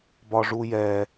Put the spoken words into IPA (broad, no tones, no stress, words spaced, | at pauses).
bɒʐujɛ